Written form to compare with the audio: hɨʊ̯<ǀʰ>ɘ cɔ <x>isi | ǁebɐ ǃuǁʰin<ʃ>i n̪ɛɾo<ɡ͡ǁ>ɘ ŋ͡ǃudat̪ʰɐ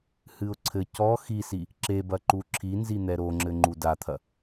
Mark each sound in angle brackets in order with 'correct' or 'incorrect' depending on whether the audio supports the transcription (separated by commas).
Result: correct, correct, incorrect, incorrect